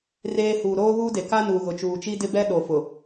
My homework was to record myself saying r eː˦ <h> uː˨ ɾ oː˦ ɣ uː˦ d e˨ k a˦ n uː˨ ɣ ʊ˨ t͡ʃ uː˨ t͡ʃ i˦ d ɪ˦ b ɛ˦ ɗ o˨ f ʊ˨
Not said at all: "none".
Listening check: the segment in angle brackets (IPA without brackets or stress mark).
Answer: h